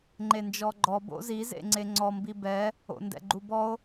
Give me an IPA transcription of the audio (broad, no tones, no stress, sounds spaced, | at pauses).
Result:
ŋ͡ǃ e n d͡ʒ ɔ ɡ͡ǃ ɔ b o̰ z i z ḛ ŋ͡ǀ e ŋ͡ǀ ɔ m b i b ɛ | o̰ n d ɛ̰ ɡ͡ǃ u b ɔ o̯